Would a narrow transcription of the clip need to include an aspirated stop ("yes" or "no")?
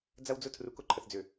yes